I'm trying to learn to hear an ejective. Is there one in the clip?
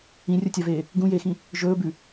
no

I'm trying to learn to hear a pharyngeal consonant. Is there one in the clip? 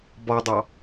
no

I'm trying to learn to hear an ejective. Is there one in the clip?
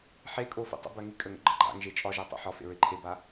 yes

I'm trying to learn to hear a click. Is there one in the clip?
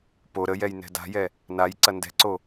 yes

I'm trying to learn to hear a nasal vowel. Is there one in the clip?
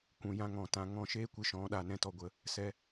yes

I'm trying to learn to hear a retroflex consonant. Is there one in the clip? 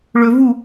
yes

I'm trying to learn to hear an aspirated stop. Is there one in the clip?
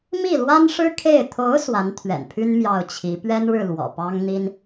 yes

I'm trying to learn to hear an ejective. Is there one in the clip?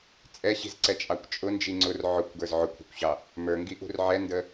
yes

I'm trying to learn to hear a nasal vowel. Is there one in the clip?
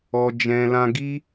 yes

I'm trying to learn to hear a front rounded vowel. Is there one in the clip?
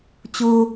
no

